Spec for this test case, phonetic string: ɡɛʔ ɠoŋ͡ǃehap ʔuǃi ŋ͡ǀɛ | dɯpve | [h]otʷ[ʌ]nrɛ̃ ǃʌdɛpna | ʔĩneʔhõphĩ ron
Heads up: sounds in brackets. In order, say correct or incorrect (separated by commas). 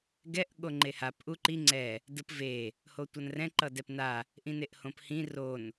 correct, correct